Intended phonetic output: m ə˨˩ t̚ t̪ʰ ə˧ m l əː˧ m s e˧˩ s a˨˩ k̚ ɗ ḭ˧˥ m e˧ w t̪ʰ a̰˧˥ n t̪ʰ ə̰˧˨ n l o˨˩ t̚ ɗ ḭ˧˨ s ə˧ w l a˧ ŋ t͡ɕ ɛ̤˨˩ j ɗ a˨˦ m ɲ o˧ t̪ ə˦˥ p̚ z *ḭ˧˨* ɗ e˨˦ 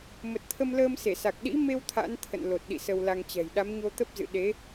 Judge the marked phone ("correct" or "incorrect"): incorrect